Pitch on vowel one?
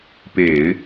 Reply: low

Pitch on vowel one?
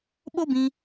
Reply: high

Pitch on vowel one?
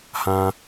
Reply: high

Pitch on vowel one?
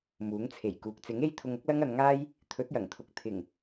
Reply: rising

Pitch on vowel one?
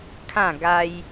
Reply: falling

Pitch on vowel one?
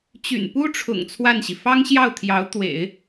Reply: low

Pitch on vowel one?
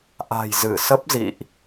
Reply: low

